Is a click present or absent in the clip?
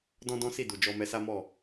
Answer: absent